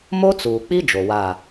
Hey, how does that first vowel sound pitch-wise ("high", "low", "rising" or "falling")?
high